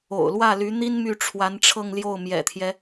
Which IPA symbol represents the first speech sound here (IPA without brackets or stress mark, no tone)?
o̰